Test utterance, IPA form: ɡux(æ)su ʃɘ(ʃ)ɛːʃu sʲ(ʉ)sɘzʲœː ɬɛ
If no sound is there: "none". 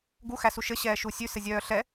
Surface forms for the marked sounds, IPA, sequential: æ, ɕ, ʉ

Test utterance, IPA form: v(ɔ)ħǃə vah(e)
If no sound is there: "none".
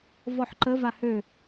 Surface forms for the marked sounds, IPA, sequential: ɔ, ø

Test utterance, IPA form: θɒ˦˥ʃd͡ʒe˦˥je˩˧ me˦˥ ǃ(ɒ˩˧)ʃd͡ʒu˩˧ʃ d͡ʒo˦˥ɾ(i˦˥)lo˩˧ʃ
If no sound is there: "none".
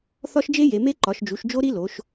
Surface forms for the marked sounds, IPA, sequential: ɒ˩˧, i˦˥

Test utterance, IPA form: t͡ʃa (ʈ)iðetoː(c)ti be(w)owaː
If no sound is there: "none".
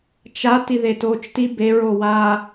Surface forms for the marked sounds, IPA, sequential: t, t͡ʃ, ɹ

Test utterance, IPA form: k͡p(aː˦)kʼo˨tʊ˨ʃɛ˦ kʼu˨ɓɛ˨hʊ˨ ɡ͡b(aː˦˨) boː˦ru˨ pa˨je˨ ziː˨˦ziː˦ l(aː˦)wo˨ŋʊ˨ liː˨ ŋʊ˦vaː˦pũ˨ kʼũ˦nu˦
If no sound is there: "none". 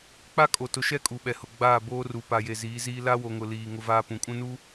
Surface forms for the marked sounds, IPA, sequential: a˦, aː˦˨, a˦

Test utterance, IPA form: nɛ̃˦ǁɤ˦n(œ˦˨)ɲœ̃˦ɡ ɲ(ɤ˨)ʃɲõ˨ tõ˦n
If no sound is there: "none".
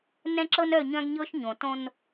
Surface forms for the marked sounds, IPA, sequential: œ˦˨, ɤ˦

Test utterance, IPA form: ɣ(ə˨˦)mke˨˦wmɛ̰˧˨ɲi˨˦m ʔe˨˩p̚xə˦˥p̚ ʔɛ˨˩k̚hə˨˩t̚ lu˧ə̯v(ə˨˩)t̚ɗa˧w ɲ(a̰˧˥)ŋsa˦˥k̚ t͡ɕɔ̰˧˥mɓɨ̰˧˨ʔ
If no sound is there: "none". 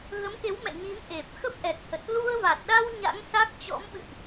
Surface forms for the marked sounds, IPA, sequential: ə˨˦, a˨˩, a̰˧˥

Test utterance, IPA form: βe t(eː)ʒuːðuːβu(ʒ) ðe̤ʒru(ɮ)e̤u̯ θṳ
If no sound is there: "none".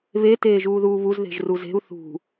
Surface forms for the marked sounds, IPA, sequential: eː, z, z

